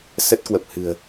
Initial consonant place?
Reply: alveolar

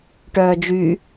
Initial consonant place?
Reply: retroflex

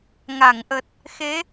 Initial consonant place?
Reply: velar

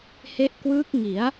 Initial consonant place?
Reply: glottal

